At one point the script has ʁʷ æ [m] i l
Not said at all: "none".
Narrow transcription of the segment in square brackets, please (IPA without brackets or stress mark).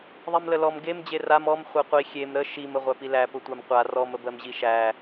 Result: p